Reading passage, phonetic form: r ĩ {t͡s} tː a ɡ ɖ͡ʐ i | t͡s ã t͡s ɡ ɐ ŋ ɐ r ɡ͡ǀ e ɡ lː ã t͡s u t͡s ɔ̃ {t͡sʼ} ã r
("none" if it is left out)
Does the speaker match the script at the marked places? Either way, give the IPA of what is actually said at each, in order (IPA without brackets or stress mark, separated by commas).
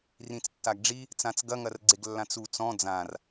t͡s, d͡z